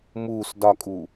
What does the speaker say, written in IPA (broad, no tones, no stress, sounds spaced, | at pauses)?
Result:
m uː s d ɒ kʼ uː